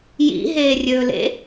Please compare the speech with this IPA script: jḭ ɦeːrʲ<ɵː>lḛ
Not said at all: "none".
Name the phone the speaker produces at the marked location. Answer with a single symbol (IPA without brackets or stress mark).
ɵː